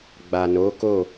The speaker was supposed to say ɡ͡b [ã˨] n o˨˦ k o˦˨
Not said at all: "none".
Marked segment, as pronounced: a˨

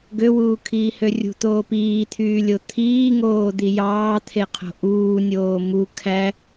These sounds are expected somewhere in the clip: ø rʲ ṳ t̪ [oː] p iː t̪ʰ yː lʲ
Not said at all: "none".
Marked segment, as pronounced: oː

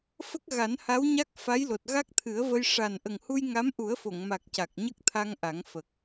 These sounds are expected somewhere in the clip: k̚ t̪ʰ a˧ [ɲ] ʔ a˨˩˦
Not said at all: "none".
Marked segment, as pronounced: ŋ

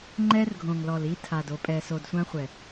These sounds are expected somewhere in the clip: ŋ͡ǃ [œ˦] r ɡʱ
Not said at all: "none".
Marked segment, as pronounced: ɛ˦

